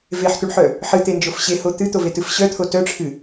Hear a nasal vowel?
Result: no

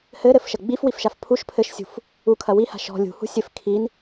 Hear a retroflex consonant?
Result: no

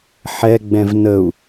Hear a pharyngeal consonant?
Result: yes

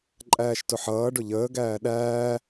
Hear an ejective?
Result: yes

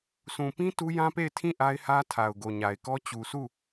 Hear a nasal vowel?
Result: yes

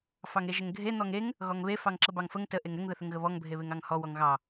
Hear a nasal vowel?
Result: no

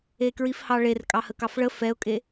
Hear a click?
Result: no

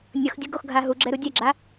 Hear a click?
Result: yes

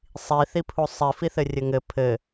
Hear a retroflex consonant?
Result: no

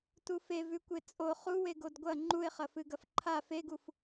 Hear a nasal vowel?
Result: no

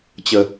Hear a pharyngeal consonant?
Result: no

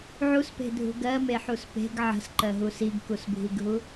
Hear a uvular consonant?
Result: no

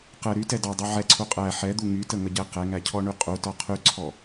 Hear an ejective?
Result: yes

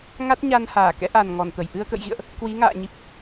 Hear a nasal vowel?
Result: no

